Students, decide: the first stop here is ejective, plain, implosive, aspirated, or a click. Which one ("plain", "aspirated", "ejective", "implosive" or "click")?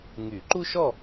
click